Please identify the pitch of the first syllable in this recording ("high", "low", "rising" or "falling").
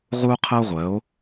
high